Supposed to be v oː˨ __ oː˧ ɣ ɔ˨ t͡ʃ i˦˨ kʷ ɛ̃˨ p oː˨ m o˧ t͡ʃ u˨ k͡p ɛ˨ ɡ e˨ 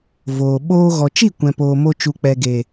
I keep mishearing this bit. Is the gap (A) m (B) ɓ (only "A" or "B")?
B